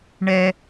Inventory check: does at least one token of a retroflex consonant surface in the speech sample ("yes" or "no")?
yes